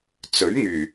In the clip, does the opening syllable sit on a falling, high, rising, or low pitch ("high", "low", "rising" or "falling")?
rising